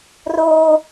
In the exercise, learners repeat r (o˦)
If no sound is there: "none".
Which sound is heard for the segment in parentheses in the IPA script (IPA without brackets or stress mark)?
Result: oː˦